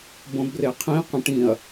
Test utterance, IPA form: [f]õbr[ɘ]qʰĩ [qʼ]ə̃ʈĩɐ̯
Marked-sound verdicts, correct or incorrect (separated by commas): incorrect, incorrect, incorrect